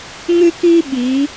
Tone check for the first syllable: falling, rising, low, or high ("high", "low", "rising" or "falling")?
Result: high